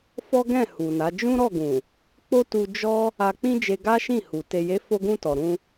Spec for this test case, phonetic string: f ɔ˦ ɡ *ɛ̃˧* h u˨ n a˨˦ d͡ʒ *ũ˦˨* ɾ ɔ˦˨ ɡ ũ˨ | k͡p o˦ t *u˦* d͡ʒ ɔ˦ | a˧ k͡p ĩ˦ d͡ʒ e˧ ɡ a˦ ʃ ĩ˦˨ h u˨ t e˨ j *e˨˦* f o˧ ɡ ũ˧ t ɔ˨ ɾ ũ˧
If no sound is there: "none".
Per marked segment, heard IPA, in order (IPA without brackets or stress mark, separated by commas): ɛ̃˦˨, ũ˦, u˧, e˨˦